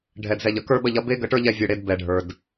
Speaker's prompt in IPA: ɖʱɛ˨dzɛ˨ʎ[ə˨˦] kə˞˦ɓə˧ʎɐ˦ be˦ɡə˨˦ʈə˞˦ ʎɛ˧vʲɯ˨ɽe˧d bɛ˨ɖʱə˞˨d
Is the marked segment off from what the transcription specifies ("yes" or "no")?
yes